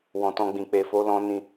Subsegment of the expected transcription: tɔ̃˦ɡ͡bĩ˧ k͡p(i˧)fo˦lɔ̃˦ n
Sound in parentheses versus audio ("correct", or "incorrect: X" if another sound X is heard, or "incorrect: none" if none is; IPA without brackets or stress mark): incorrect: e˧